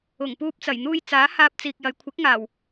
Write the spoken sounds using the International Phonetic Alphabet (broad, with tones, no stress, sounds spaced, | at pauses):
ʊ˨˩ ŋ p uː˧ p̚ t͡s ɐ˨˩ j n̪ uː˧ j t͡s aː˨˥ h aː˧ p̚ t͡s iː˨ k̚ j ɐ˨˧ j kʷʰ ɪ˨˥ k̚ ŋ aː˨˩ w